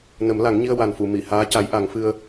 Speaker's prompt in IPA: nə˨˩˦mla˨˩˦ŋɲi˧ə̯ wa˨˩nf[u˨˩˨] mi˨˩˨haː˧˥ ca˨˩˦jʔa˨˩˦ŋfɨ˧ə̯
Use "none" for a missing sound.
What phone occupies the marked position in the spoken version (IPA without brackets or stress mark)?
u˨˩˨